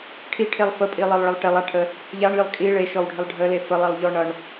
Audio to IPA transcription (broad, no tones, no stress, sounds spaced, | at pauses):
ʈʰ i ʈʰ e lˠ f ə pʼ i lˠ e lˠ ɭ ə lˠ ʈ e lˠ a ʈʰ ə | ʎ a ɳ lʲ ʌ lˠ kʼ i ɭ e ʃ ɔ w ɖʱ ə lˠ ɖʱ ə l e f ə lˠ i lˠ ʎ ɔ ɳ ʌ ɳ